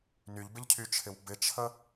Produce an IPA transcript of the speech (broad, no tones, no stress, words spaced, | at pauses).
nyʎbɪʎcʰyt͡ʃʰɪw bɪt͡ʃʰə